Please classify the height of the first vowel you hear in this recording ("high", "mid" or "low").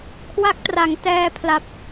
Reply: low